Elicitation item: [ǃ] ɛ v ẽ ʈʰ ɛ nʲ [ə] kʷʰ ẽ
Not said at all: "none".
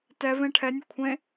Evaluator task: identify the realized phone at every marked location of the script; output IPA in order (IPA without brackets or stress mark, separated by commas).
t, ə